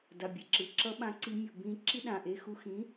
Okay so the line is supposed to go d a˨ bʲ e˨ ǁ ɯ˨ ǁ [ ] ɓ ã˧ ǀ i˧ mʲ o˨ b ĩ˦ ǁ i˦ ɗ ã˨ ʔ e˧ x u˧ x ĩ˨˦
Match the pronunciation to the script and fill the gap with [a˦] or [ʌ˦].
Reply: ʌ˦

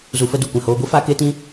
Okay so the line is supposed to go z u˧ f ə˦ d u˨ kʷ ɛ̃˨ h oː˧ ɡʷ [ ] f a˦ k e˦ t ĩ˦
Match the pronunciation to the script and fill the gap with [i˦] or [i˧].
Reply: i˦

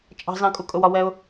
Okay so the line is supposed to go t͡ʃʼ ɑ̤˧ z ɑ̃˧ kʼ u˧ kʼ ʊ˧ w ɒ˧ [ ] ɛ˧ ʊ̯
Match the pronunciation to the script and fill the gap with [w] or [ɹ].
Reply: w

